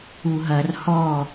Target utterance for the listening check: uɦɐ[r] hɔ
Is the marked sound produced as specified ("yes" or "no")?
yes